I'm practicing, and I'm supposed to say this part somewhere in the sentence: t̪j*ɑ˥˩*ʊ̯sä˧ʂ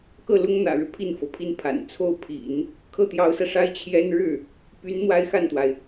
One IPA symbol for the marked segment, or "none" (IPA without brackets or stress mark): ɑ˧˥